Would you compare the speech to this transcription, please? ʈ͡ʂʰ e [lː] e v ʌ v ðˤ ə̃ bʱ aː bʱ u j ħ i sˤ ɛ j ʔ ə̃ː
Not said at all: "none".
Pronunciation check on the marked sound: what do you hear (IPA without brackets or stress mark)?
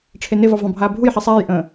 n